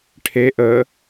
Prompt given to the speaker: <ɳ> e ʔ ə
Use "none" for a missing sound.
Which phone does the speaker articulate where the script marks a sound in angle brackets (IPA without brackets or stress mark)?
ʈʰ